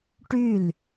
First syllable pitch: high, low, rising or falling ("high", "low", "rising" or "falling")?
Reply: falling